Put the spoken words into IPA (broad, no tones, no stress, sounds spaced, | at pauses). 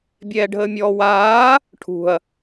bʲ ɛː ɖʱ əː mʲ ɔː w aː | ʈʰ ṳ ɐ̯